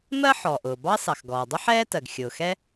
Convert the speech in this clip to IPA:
mɜ˥ ħɔ˩ʔʊː˩bɑ˥ sɑ˩xɡɔː˩dˤʊ˥ ħɛː˥tɜ˩ɡ xʲʊː˩xɛ˥

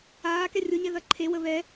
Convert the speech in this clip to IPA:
aːkɛ rʲʊɲɛ ðɐǃʰewə βɛ

